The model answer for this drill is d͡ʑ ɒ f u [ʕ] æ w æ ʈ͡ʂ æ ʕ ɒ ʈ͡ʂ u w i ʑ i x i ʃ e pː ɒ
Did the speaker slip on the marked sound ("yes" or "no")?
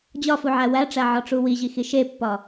no